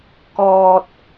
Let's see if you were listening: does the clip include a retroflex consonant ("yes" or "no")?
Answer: no